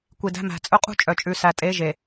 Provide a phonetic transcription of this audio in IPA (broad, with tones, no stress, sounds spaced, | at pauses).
kʷ i˨ d æ̤˦ m æ̤˨ t͡sʼ ɵ˦ qʼ ṳ˦ t͡ʃʼ œ˨ t͡ʃʼ ʉ˨ s æ˨ tʼ e˨˦ ʒ e˨